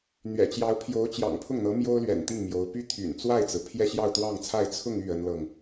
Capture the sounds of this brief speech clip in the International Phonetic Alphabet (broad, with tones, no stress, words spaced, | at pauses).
n̪ɥɛ̰˨˩t͡ɕjɑ˧˥ʊ̯pʰjo˧˥ʊ̯ t͡ɕjɑ̰˨˩ŋpʰʊ˥˩ŋn̪ɤ˧˥ mjo˥ʊ̯lɥɛ̰˨˩nt̪i˥˩ŋ mjo˧˥ʊ̯ py˥t̪ʰy̰˨˩n t͡swa˥˩ɪ̯t͡sɹ̩˩ pʰjɛ˥˧ɕjɑ˥˧ʊ̯t̪wɑ˥˧ŋt͡sʰa˥˧ɪ̯ t͡sʰʊ˥˧ŋy˥˩ ə˥nlɤ˨ŋ